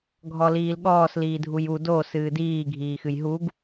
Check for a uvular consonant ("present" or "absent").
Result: absent